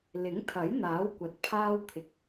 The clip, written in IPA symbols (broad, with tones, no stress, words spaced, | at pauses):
lɪ˨˥ŋt̪ʰɐ˨˥j n̪aː˨˥wkʷɐ˨t̚ pʰaː˧wt̪ʰɪ˨k̚